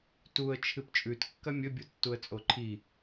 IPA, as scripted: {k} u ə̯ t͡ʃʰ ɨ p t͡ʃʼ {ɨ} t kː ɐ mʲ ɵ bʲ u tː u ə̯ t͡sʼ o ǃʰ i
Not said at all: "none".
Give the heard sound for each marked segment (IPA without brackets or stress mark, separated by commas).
t, ʉ